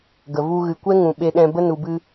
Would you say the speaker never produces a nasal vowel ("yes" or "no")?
no